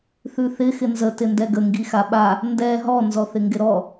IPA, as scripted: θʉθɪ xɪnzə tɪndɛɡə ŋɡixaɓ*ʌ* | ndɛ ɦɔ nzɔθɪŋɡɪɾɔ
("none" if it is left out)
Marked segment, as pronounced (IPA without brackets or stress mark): a